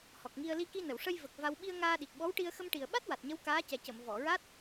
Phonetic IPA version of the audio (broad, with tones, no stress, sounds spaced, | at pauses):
h ɔ˨˩ k̚ ŋ i˧ ə̯ l i˧ k i˧ n ə˨˩˨ w ʂ ə˧ j v ə˨˩ k̚ v a˧ w ɓ i˧ ə̯ ŋ aː˧ ɗ i˨˩ k̚ ɓ ɔ˧˥ w ʈ i˧ ə̯ x ə˧ m ʈ i˨˩ ə̯ ɓ a˦˥ t̚ w a˨˩ t̚ ɲ ə˧˥ w k aː˧˥ c ɛ˨˩ c ə˨˩˨ m v ɔ˨˩˨ ɹ a˦˥ t̚